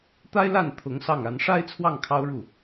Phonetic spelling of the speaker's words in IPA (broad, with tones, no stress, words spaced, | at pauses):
t̪a˥ɪ̯la˥˩n t̪ʰʊ˧˥ŋsɑ˥˩ŋa˧˥n ʂa˥ɪ̯t͡sʰwɑ˥˩ŋ kʰɑ˥ʊ̯ɻu˥˩